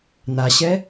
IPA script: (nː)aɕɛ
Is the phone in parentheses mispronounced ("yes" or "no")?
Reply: yes